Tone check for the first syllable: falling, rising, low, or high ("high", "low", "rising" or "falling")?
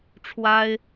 high